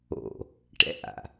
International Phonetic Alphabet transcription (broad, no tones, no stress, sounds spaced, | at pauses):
o̰ | ʈ ɛ̰ ʔ a̰